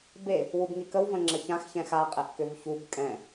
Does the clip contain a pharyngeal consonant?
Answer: no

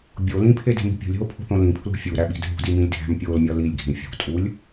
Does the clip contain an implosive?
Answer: yes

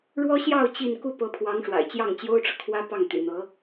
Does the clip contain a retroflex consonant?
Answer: yes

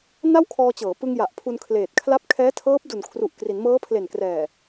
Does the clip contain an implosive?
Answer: no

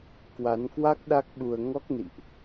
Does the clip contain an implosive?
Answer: yes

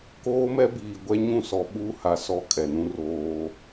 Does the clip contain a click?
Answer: no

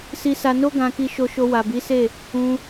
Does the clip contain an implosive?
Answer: no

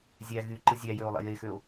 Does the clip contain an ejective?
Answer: no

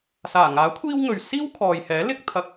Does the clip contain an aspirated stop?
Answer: yes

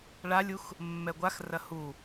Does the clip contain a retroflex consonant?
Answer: yes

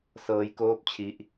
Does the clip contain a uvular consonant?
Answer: no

